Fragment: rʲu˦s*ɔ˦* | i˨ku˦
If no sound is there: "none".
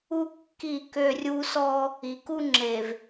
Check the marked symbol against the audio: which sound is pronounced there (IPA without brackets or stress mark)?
ɔ˦